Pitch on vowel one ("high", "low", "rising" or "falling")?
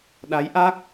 rising